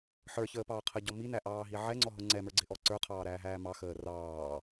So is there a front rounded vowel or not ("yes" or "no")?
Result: no